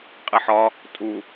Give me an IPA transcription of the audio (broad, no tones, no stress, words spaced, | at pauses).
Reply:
qʼiħɒ | tʼu